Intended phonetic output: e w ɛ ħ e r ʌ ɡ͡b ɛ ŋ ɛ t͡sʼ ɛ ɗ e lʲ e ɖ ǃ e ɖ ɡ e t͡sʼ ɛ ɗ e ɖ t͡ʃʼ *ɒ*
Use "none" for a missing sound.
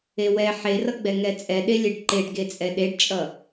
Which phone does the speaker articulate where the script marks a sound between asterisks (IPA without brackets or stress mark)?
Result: ʌ